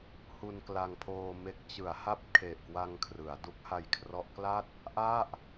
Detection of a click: absent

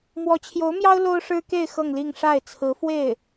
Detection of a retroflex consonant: present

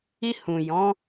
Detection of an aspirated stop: absent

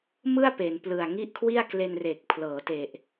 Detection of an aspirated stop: present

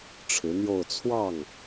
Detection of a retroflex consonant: present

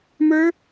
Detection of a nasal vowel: absent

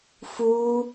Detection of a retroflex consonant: absent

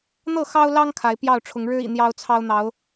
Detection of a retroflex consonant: present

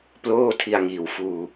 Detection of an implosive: absent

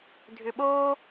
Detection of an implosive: present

